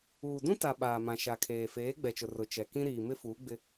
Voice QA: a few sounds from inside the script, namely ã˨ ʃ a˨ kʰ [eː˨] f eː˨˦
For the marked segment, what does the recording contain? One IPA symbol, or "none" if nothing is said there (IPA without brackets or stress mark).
eː˨